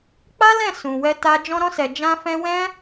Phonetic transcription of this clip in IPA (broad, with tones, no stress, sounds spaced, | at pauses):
k͡p a˦ l ɛ̃˦˨ s ũ˨ w ɛ˧ t a˧ d͡ʒ ɔ̃˧ ɾ ɔ̃˧ s ɛ˨ d͡ʒ ã˧ f ɛ̃˧ w ɛ̃˦